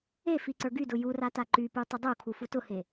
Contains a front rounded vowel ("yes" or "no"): yes